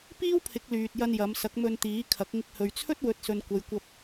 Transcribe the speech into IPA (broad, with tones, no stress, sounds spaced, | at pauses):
p iː˥ w pʰ ɪ˨˥ k̚ l yː˨ t̚ j ɐ˧ n j ɐ˨˧ m s ɐ˨˥ k̚ m ɵ˧ n t̪ iː˨˥ kʰ ɐ˨˥ k̚ ŋ ɪ˧ k̚ h ɵ˨ ɥ t͡sʰ ɵ˥ t̚ w ɵ˨˥ t̚ s ɵ˨ n kʷ ɐ˨ j kʷ ɐ˧ p̚